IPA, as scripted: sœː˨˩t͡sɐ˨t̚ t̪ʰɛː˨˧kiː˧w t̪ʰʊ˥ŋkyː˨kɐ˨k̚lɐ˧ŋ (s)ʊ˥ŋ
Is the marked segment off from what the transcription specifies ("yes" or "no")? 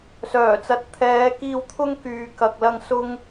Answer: no